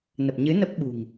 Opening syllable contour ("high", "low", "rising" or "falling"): low